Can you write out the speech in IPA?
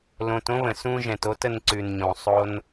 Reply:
lõ˨tõ˥βə̃˩sũ˦ ʒɛ̃˩to˦tə˨nǀʉ˩n ɲõ˩ sˤo˦n

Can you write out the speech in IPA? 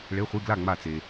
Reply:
ɭe˧˥˧χʷi˧˥˧ ɡla˥˨ ŋ͡ma˥˨t͡se˧

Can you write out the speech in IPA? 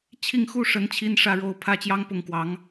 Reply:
t͡ɕʰi˥˧ŋxu˥˩ʂə˧˥n t͡ɕʰi˥nʂä˥˧ɻo˥˩ʊ̯ pʰä˥t͡ɕjɑ˥ŋ pʊ˥˩ŋkwɑ˧˥ŋ

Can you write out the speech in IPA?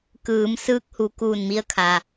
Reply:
kɯː˩˧m sɯː˧k̚hu˩˧kuː˧˩n mi˧ə̯kʰa˩

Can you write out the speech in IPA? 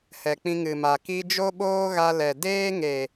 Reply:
hɛ˨k͡pĩ˧ ŋɨ˨ma˨ ki˧d͡ʒo˦ɓoː˦ ɣa˧lɛ˨ deː˦ŋe˨

